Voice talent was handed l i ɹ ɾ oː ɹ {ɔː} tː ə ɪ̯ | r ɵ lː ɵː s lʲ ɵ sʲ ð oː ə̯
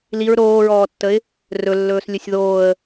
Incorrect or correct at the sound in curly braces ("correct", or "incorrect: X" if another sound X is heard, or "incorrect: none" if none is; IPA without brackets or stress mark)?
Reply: correct